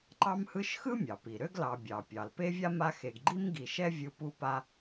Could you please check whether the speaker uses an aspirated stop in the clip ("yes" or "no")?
no